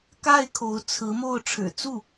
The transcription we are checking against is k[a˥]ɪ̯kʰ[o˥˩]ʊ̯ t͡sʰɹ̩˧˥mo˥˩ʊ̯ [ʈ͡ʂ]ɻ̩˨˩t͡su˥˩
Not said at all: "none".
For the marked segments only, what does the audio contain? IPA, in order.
a˥˩, o˧˥, ʈ͡ʂʰ

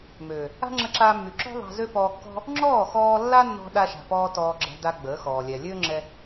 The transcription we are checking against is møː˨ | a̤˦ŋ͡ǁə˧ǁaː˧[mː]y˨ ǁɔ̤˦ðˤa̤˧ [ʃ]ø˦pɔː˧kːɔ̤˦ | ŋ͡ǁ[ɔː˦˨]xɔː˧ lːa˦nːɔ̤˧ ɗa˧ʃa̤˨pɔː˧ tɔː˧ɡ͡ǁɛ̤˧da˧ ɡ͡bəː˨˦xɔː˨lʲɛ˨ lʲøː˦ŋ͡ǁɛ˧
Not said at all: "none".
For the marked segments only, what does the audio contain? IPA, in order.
mː, z, ɔː˦˨

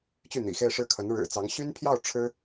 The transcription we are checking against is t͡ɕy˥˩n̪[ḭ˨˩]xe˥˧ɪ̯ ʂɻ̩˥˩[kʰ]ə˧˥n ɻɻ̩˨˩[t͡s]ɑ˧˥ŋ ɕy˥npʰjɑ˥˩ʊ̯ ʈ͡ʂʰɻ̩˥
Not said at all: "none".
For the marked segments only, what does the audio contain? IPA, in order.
ḭ˨˩, kʰ, t͡s

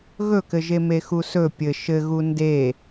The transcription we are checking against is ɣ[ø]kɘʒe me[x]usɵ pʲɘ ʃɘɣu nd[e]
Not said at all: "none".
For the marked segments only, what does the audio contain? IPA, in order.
ɵ, x, e

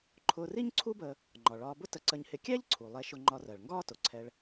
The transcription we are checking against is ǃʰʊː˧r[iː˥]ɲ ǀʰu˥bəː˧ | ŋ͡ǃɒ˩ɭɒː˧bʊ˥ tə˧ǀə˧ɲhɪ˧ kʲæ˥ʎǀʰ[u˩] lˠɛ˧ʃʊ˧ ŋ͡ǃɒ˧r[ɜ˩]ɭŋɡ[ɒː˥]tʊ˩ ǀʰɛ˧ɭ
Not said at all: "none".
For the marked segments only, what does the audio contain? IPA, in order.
i˥, u˩, ɜ˩, ɒː˥

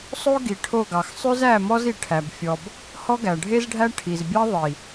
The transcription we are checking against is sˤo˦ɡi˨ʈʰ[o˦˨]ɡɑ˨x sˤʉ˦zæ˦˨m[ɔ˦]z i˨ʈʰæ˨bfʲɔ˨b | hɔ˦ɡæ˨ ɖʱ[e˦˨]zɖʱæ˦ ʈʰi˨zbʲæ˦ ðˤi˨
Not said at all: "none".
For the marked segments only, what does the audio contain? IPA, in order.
o˦˨, ɔ˦, e˦

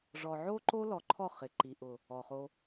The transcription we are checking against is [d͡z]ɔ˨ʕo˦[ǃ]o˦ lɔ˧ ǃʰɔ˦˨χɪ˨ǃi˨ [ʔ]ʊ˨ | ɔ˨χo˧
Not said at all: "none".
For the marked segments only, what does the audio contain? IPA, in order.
ʐ, ǃ, ʔ

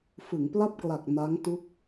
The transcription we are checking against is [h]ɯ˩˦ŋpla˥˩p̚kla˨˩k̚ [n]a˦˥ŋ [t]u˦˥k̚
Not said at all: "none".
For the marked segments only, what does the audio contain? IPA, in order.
f, n, t

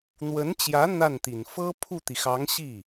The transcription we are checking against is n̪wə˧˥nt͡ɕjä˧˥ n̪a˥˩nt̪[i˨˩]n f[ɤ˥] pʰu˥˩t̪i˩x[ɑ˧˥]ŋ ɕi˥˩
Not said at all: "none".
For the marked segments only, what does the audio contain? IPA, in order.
i˨˩, ɤ˥, ɑ˧˥

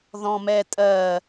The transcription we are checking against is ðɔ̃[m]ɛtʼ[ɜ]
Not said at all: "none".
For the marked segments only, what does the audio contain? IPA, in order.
m, ɜ

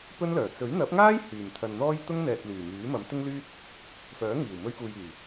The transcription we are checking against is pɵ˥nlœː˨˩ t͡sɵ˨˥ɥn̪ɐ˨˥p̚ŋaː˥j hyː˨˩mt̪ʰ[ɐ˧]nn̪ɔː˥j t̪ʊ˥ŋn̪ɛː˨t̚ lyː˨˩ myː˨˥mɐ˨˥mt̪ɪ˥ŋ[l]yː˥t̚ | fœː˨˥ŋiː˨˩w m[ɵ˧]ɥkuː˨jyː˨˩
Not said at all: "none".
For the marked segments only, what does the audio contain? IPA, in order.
ɐ˨, l, ɵ˧

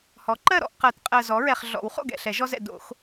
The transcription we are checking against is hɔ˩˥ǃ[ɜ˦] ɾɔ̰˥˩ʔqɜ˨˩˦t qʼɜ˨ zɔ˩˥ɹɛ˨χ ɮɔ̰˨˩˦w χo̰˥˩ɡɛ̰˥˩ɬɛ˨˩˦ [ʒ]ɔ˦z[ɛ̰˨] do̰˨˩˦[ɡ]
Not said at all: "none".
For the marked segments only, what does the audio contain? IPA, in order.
ɜ˥˩, ʒ, ɛ̰˨, x

